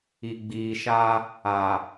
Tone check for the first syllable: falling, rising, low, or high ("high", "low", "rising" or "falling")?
low